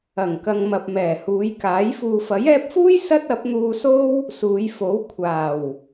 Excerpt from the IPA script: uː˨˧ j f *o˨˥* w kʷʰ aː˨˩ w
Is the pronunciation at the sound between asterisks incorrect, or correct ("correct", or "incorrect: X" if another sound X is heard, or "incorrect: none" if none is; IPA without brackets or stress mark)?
correct